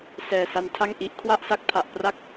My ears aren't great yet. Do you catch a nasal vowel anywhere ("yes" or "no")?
no